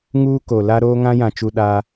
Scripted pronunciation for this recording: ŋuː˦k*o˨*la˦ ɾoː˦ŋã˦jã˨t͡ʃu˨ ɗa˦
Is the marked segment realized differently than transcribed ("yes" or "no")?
no